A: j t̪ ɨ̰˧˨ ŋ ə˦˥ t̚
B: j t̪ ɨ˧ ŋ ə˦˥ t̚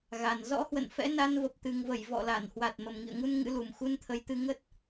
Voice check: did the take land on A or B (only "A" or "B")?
B